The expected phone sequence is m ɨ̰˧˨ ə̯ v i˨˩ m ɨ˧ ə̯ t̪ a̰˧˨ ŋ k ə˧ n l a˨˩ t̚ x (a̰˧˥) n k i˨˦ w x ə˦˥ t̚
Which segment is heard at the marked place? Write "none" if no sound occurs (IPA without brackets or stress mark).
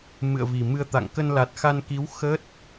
a˧